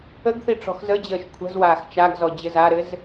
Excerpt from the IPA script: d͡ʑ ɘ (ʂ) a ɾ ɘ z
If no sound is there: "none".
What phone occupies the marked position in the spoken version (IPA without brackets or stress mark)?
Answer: z